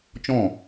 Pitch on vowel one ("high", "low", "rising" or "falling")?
falling